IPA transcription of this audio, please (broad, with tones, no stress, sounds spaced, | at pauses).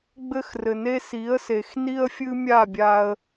ɡ͡b ɘ˦ x r ɘ˨ n e˦ s i˨˦ ə̯ s e˨ x n i˦ ə̯ fʲ ɨ˦ mʲ a˦˨ bʲ a˧ ə̯